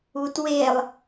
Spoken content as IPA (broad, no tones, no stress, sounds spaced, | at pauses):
u t w e lˠ